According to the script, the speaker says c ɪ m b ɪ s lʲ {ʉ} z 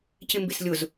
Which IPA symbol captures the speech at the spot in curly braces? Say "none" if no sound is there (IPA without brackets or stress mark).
ʊ